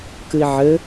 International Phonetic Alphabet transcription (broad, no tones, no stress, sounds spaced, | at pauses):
k ɨ i̯ ʕ ɘ